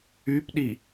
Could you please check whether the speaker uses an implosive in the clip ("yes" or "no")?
yes